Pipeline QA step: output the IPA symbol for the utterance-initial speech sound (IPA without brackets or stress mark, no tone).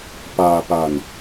p